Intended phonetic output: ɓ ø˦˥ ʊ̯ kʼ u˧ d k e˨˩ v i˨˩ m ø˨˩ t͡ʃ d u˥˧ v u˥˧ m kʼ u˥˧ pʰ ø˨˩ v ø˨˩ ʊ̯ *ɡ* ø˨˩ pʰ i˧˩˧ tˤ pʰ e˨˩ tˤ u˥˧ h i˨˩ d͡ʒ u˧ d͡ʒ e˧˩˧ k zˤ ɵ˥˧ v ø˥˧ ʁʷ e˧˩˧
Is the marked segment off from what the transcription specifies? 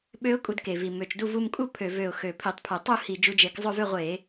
yes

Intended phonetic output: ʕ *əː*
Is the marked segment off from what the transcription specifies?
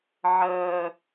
no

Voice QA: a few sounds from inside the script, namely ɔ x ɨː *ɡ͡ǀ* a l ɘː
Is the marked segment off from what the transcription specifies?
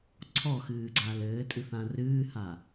no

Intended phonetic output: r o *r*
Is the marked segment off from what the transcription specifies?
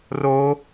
yes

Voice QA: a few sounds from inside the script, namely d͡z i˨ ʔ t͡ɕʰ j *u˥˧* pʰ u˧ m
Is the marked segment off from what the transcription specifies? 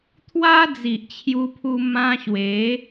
yes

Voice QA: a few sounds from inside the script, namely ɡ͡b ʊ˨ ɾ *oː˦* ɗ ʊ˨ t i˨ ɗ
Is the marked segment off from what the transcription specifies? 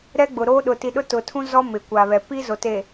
no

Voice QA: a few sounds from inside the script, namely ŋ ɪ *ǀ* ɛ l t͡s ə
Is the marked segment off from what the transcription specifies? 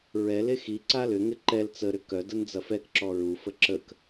yes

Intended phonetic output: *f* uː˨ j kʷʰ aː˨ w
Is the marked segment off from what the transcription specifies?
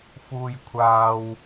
no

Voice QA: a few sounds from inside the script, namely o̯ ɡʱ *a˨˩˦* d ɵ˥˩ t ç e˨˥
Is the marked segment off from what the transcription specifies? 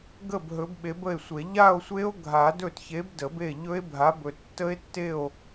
no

